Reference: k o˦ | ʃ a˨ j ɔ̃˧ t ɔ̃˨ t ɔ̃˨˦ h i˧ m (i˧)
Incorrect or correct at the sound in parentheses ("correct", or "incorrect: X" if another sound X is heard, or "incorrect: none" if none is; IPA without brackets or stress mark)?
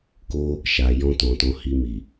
incorrect: i˨